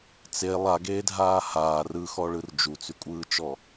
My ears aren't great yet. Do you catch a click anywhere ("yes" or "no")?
no